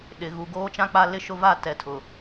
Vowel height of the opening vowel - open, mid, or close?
close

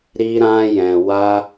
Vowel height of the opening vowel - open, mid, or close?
close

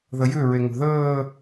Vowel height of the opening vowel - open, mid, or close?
mid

